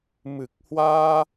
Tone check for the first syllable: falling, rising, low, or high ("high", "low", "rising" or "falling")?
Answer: low